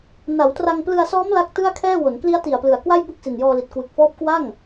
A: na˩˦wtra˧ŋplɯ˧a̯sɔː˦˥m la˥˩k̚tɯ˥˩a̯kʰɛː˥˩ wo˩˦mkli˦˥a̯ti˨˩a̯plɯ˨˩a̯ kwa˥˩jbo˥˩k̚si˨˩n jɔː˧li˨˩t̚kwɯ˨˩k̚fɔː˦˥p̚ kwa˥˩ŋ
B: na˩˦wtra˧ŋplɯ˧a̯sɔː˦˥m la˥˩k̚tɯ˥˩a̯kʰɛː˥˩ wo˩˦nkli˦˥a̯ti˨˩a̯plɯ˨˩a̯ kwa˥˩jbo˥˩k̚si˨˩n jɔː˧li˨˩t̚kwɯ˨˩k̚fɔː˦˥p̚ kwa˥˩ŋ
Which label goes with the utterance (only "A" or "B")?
B